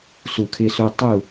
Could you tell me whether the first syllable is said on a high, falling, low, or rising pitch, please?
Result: low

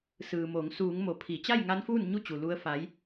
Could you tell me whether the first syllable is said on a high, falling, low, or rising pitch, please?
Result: low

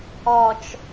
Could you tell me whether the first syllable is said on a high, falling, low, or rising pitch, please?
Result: low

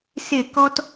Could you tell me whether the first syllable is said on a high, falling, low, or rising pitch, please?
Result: falling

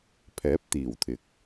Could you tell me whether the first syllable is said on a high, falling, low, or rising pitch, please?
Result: rising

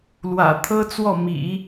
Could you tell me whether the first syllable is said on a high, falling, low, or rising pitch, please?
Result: low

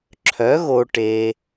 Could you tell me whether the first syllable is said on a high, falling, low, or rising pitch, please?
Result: rising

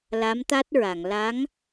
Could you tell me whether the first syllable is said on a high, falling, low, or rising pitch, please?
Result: rising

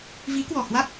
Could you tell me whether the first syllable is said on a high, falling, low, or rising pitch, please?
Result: rising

